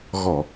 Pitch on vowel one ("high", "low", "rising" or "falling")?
low